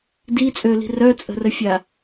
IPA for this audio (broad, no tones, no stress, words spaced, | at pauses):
dit͡sʼøli̤ rœt͡sʼə̤rəfʲa